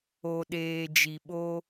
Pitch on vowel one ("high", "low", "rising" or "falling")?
low